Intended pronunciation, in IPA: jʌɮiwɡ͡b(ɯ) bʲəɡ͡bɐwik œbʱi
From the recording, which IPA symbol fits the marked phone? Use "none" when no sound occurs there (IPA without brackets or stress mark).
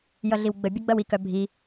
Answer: ə